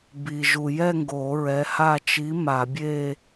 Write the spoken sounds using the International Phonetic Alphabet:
b i˨ ʒ u˨ j ɛ˥˧ ŋ ɡ oː˨˩˦ ɹ ɛ˨˥ h a˥˧ t͡ʃ i˨˥ m a˨˩˦ bʲ e˥˧

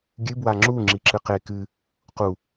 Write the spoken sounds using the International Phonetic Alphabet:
ɡʲ ɨ b w a ŋ͡ǁ u ŋ͡ǁ i ǁ ɨ q e k ɨ | q u

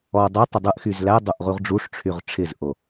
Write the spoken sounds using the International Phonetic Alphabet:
ɔ dˤ e tˤ ɪ dˤ ɯ ʔ x y z l æ dˤ o ʔ ʁ u ʁ ɖ͡ʐ u ʂ ʈ͡ʂʰ y ʁ ʈ͡ʂʰ ɪ z ʔ o

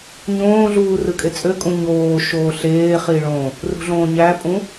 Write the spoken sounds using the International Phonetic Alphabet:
ɲ õː ɮ uː r ɯ kʼ e t͡sʼ ø kʼ ũ ɲ oː ʃ oː ɬ eː χ i ɭ õ | r ṳ ɮ õː ɲ æ pʼ ũ

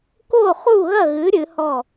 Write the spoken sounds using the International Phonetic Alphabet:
k o˥˨ χ u˥˨ ɣ ɐ˥˨ ɣ ɨ˨˥ ɾʲ ɨ˨˥ h ɔ˥˨

